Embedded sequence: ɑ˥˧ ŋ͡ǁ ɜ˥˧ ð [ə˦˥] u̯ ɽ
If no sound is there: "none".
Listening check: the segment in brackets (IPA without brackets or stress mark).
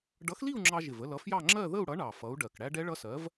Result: ə˥˧